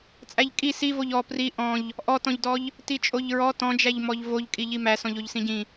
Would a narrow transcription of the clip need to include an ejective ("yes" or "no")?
yes